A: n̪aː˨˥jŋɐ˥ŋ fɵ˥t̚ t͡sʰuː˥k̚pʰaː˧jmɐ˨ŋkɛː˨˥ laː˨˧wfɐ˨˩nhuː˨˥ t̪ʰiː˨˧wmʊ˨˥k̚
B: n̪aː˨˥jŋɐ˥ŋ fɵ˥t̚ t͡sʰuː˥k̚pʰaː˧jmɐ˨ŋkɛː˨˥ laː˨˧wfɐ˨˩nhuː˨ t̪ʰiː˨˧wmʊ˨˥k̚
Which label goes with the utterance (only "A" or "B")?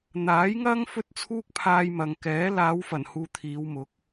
B